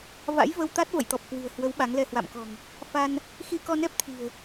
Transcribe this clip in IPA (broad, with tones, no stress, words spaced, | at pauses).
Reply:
va̰˧˥jvə˧wt̪a˦˥t̚ və̰˧˨jt̪ɔ˨˩p̚ kwɨ̤˨˩ə̯hwə˨˦w ɓa˨˦ŋlɛ˧hwa̰˧˨m kɔ̤˨˩ŋ | fa˧n | xi˧kɔ˧nɛ˦˥p̚t̪ʰi̤˨˩ə̯